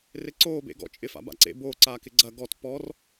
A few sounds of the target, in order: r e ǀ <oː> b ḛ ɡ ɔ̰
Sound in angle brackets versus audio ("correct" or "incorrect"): correct